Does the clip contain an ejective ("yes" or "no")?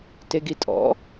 yes